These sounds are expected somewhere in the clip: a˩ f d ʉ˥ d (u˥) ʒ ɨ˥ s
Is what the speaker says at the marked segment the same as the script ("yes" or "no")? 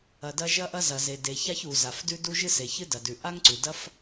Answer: yes